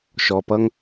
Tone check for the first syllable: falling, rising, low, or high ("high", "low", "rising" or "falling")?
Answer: low